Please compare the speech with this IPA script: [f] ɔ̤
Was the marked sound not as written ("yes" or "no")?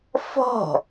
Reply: no